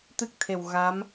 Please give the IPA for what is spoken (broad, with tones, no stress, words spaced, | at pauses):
t̪ɨ˦˥k̚t̪ʰe˨˩w ɣa˧˥m